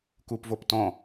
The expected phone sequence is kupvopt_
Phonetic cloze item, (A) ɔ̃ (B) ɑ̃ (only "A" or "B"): A